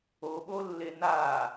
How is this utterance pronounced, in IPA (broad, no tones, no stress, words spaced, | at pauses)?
oɓolːe na